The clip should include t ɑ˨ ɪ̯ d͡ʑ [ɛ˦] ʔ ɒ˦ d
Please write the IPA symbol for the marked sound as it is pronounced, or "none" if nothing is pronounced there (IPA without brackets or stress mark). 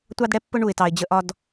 ə˦